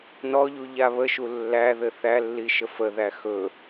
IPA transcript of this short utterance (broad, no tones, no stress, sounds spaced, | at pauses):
n ɔ ʎ u ʎ a β ə ʃ u lː æ ð ɘ θ æ lː i ʃ ə f ə ð æ x ɵ